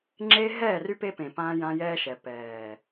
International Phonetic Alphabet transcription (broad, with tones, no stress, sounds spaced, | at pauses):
ŋ͡ǁ e˦ ɦ ɛː˦˨ r y˦ p e˦ p ẽ˨ p ãː˦ j ã˦ j ɛː˦ ʃ ɛ˨ p ɛː˨